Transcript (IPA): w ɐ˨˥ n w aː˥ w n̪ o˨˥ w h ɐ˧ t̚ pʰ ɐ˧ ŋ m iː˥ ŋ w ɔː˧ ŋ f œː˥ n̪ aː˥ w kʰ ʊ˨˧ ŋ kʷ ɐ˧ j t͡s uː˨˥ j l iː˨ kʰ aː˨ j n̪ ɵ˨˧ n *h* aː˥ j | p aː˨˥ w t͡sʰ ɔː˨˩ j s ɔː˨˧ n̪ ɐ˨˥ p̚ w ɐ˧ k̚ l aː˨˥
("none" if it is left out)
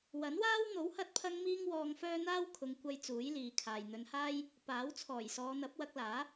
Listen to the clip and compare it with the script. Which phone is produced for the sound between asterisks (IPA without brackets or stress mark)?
h